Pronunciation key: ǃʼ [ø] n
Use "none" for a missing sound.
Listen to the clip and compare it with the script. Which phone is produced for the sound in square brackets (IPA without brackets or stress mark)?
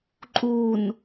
u